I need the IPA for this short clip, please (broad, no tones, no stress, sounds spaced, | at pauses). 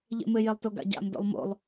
ʎ ḛ m ɘ j e lˠ t o ɡ a̰ ɟ a̰ m d o̰ lˠ m o̰ lˠ